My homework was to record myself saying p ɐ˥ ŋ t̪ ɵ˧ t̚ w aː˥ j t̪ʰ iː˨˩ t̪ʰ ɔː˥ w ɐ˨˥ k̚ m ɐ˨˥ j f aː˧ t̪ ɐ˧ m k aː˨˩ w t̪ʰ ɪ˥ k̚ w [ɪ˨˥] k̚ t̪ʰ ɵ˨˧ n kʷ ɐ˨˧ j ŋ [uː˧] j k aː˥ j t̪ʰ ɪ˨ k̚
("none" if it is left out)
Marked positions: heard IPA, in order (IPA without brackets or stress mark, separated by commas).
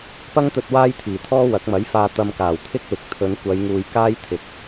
ɪ˨, uː˨